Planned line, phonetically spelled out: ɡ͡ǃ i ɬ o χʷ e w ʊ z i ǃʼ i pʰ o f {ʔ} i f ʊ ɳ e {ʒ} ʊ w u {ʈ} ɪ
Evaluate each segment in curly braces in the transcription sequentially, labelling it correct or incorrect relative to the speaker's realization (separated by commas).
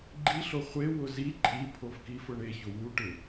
incorrect, incorrect, correct